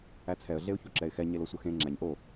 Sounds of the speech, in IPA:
æ t͡sʰ ɛ ə̯ ɮ e ʊ̯ ç o ǁ ɛ ɪ̯ x ɛ ɲ e l o sʷ ə x ẽ ŋ͡ǁ æ ɲ ʔ o

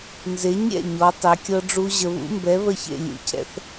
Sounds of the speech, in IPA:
n z e˨˥ ɲ ɾʲ ɛ̰˥˨ ɲ ɔ˨˥ tˤ ɛ˨˥ kʲ ɤ˦˥ ɖ͡ʐ u˦˥ ʑ ə˨ β ṵ˦˥ m b ɛ˨˥ β ə˥˨ ç ḛ˥˨ lʲ ṵ˨˥ cʰ ɛ̰˥˨ θ

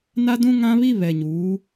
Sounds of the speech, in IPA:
n a˦ d ũ˦ ŋ ã˦ β i˦ β ɛ˨ ɲ uː˨˦

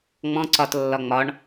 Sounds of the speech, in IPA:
ŋ͡m ɔ̃ ǀ ɒ t lː ɒ ŋ͡m ɒ ɳ

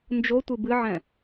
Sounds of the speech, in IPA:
n d͡ʒ o tʷ ɨ b ɨ ʕ ɛ̃

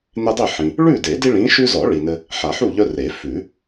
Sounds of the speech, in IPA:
n e˦ dˤ i˥˨ ħ ĩ˨ | ɭ ʉ˥˨ d e˨˩˦ d i˦ ɭ ĩ˨˦ ʃ ʉ˦ z ɔ˨˩˦ ɭ i˨ n ɘ˦ | ħ a˨˩˦ ħ u˥˨ ʎ œ˦ r e˨˩˦ f ʉ˨˩˦

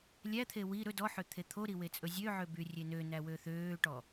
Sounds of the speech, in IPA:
lʲ æ t̪ʰ e w i ɾ ɵ d ɔ ħ ø t̪ʰ e t̪ʰ o ɾ i w e t͡sʼ ɵ zʲ ø ʕ ø b y rʲ e n ø n æ w ø θ øː ʈ ɔ

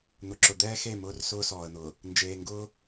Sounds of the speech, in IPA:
n̪ ʊ˨ ǁ ʊ˨ d̪ ɛː˦ x e˦˨ m ʊː˦ r s ʊː˦ s ɔː˨ ə̯ n̪ ʊː˨ | n d͡ʒ eː˨ ŋ ɡ ʊː˦

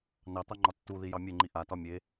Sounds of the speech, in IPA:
n ɑ t̪ ɑ ŋ͡ǃ ɒ tː u ð i j ɑ mʲ e ŋ͡ǃ i ʔ a t ɒ mʲ e

